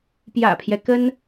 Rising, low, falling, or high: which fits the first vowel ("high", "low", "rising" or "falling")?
low